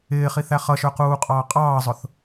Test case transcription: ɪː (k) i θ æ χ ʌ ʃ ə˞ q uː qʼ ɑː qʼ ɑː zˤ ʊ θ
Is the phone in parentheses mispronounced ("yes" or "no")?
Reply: yes